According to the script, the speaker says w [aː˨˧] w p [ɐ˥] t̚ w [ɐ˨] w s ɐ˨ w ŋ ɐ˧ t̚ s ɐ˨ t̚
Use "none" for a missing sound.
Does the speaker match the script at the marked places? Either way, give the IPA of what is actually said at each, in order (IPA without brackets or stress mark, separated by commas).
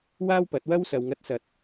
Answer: aː˥, ɐ˨˥, ɐ˥